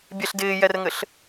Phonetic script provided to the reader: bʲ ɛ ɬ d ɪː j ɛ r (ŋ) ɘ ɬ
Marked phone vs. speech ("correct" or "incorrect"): correct